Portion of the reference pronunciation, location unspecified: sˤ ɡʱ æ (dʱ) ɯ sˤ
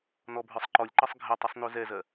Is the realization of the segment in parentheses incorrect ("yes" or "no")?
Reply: yes